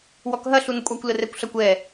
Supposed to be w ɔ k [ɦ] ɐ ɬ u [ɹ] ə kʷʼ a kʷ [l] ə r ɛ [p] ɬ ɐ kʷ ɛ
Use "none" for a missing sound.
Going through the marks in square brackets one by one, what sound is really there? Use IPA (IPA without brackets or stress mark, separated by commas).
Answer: ɦ, n, l, kʷ